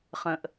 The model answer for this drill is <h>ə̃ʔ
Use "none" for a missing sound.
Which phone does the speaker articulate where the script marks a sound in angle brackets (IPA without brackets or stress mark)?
χ